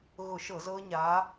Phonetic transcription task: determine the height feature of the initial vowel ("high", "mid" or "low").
high